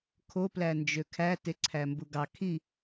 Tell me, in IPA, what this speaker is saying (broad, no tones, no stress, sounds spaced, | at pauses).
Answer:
kʰ o p l æ n d͡ʒ ø kʰ æ t e ǀʰ æ m b u ɡ ɑ kʰ i